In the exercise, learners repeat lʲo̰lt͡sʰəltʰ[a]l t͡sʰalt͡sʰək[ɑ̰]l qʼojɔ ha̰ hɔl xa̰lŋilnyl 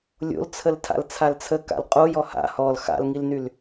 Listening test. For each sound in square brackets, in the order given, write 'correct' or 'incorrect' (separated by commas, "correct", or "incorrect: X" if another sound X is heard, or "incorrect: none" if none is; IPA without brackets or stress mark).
incorrect: a̰, incorrect: a̰